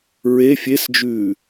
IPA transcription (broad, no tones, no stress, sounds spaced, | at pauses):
ɹ e fʲ e s d͡ʒ ʉː